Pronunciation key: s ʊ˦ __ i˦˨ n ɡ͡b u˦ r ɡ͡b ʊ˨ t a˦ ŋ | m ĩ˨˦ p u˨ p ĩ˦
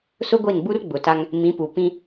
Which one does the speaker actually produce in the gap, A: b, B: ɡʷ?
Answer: B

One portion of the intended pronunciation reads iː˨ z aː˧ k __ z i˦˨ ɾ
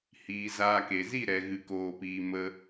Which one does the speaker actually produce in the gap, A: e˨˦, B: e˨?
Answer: B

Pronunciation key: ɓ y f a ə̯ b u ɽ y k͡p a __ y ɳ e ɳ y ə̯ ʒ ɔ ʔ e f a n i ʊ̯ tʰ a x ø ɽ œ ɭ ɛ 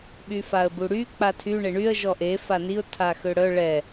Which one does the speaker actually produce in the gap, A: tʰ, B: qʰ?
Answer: A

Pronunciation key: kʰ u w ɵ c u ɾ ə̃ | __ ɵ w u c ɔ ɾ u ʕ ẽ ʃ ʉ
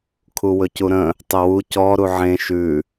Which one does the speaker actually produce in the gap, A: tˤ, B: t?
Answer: A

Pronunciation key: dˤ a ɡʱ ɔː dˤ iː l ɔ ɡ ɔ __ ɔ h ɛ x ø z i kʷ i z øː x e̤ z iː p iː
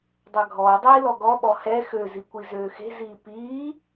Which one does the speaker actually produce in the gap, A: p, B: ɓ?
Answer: B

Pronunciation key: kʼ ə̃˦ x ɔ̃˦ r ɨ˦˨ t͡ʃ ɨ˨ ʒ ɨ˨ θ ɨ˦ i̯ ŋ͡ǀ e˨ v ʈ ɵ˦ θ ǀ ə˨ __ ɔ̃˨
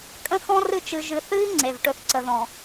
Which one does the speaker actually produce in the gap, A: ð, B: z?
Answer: A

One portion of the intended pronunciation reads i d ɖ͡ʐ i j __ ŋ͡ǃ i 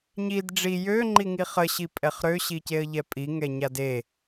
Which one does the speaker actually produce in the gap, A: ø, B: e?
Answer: A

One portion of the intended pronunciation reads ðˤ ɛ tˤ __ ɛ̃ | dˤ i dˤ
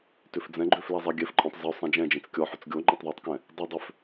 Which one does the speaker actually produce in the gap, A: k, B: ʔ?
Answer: A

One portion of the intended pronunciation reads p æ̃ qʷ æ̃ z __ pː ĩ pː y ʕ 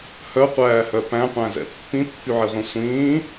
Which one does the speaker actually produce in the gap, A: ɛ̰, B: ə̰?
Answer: A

